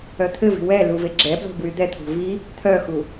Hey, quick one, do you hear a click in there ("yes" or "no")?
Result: yes